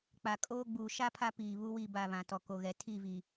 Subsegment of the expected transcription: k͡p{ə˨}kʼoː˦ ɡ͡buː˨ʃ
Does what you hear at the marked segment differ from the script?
yes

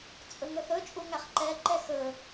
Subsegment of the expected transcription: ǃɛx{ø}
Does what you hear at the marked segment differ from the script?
yes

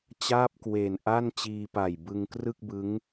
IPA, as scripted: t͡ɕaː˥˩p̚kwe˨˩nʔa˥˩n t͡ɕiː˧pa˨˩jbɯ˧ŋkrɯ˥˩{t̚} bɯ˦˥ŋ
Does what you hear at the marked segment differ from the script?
yes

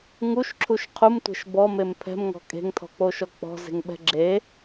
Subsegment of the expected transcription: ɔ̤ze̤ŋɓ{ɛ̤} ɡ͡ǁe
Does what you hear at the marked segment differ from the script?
no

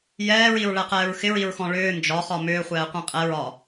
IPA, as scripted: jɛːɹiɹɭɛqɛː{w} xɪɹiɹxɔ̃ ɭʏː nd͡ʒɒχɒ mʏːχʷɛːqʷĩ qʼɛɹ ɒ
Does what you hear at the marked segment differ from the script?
yes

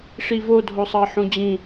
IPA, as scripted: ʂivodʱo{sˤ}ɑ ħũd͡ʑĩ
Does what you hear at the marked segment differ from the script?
no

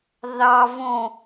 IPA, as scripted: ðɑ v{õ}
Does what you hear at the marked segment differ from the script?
no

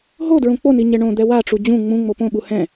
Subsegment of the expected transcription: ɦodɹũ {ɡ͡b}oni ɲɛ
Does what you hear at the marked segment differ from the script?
yes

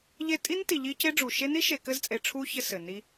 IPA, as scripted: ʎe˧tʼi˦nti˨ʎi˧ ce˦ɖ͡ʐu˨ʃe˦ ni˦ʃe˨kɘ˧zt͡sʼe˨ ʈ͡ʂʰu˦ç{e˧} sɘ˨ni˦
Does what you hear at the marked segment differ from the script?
yes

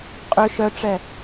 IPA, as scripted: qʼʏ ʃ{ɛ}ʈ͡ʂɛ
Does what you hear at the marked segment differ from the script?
yes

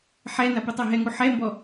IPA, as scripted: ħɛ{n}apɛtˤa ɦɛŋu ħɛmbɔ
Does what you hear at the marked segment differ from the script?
no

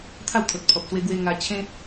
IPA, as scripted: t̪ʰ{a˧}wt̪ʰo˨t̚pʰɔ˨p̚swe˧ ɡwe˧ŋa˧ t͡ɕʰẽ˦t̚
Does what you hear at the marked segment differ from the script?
yes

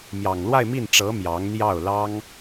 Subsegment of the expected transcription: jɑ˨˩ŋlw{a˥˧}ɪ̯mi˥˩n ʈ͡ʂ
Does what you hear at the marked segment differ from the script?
no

